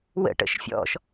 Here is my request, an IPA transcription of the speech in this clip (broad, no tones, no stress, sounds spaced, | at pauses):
w ə̰ ʈ ə̰ ʃ fʲ ɔ̰ ʃ